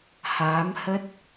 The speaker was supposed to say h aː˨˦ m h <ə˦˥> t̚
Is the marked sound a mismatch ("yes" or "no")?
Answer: no